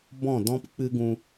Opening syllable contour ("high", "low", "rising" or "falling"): falling